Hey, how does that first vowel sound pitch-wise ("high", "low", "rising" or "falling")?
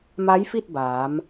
rising